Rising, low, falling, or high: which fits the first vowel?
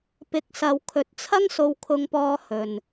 rising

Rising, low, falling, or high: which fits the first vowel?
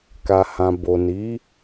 low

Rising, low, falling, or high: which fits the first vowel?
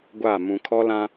falling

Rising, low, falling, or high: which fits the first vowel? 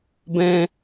high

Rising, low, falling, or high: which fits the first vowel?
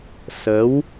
rising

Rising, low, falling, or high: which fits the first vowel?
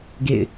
falling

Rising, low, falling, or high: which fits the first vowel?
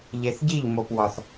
low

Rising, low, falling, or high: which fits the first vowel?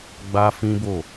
high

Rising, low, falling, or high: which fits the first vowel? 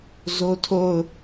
high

